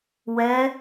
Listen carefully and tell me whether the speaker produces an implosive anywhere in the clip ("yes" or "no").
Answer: no